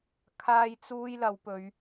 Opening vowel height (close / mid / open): open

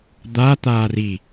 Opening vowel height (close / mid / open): open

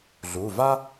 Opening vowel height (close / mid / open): close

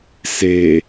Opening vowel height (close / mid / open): mid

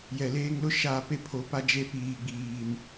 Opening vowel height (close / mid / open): mid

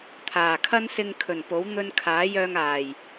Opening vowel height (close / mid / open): open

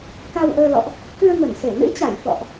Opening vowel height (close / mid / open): open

